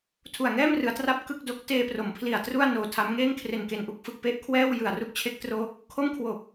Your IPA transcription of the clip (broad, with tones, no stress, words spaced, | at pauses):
tʰu˨˩a̯ŋɛː˥˩mrɯ˩˦a̯ tra˥˩p̚ kɯ˥˩k̚do˦˥k̚ teː˧pro˩˦m pʰli˨˩a̯tru˥˩a̯ noː˧tʰa˦˥m ŋeː˥˩ŋkʰre˨˩nke˨˩nʔu˥˩k̚ fɯ˨˩k̚pe˥˩ʔkʰwɛː˥˩w jɯ˨˩a̯ru˥˩k̚t͡ɕʰe˦˥k̚ tro˦˥k̚ | kʰo˥˩mkʰwo˨˩k̚